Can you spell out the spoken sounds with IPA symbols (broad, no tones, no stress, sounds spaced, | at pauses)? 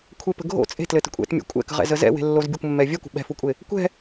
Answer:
kʷʰ e p ə̤ ɡʱ o̰ t͡sʼ e̤ t l ɘ t ə̤ kʷʼ ɛ̰ t mʲ ṵ kʷʼ ɛ̰ k ə̤ ʁ ɛ̰ z ə z ɛ̰ w e̤ lː o z bʲ ə kʷ mː ɛ vʲ ɛ kʷ ə̤ ɓ ɛ̤ f u kʷʼ e | kʷ ɛ̤